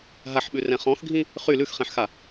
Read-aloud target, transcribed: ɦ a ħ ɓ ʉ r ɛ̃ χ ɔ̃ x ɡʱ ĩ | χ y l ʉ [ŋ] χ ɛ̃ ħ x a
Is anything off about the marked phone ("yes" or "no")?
yes